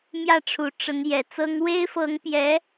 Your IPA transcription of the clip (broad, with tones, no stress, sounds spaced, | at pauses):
m j ä˥˩ ʈ͡ʂʰ u˨˩ ʈ͡ʂ ə˧˥ n j ɛ˨˩ t͡s ɤ˥ ŋ w e˥ ɪ̯ f ɤ˧˥ ŋ p j ɛ˧˥